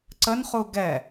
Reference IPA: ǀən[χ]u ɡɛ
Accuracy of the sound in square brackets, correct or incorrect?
correct